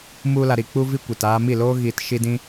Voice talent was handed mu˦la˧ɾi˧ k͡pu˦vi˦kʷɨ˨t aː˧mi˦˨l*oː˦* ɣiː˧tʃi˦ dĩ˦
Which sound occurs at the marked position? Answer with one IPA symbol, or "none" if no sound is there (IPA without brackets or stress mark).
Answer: oː˦